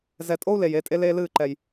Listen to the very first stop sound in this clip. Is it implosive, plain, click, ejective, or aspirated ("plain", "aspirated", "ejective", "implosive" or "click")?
ejective